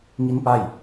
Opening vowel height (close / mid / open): close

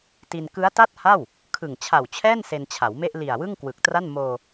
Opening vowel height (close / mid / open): close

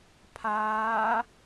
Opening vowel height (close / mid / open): open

